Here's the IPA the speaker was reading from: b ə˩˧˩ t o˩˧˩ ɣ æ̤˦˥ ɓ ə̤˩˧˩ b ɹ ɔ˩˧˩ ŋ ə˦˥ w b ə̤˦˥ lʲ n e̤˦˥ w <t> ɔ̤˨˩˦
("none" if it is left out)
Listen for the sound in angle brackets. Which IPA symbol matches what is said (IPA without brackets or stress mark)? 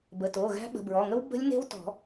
t